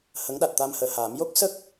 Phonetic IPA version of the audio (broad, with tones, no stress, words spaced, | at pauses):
hə˧˥ŋɗa˨˩t̚ t̪a˧mhəː˨˩haː˨˩˦m jo˦˥k̚sə˦˥k̚